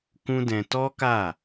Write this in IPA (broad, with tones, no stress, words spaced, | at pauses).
kũ˦dɛ̃˧ tɔ˦ka˦˨